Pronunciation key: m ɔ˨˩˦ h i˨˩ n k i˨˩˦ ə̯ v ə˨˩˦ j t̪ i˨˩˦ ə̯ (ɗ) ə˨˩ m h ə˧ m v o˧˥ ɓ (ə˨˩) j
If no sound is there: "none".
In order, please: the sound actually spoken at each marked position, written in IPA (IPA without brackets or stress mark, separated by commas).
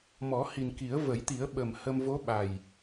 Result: ɓ, a˨˩